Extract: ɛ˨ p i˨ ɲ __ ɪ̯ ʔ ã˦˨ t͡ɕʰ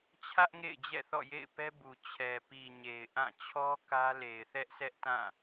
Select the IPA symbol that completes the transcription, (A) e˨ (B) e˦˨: A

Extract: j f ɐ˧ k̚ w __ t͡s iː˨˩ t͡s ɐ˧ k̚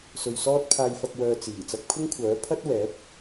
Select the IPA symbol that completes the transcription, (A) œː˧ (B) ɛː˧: A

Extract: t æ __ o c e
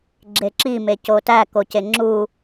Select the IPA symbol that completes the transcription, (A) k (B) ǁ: A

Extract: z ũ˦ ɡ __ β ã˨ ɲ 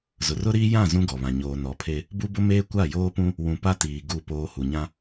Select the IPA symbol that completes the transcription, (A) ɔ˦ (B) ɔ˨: B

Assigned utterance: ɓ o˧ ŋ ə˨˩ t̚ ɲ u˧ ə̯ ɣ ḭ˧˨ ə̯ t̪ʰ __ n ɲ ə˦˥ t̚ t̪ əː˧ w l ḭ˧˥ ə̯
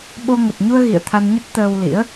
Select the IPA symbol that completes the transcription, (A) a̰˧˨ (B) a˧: B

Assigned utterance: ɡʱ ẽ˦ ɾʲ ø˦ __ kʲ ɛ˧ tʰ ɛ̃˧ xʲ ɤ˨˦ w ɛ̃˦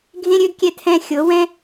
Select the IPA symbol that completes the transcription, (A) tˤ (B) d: B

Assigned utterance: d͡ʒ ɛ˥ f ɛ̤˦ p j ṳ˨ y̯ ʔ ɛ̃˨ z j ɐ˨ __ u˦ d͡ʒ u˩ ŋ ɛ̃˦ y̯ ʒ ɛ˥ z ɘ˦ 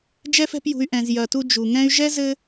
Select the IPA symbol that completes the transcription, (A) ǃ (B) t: B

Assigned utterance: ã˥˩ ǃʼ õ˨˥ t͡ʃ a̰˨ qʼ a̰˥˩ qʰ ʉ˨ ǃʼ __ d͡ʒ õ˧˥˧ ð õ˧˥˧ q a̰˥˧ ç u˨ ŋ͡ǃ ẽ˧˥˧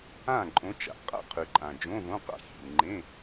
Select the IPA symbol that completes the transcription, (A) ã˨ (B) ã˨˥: A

